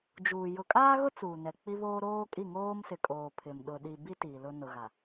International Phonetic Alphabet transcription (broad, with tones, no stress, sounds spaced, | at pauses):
d͡ʒ uː˨ j ʊ˨ kʼ aː˦ ɣ ʊ˦ t͡s uː˨ n ɛ˨ k͡p i˦ β oː˦ ɾ oː˦ kʼ i˦˨ ŋ oː˦ m s ɪ˨ kʼ oː˨ pʰ ɪ˨ m ɗ ʊ˨ ɗ i˨ b i˦ t i˨ l ʊ˦ n ʊ˨ ɣ a˨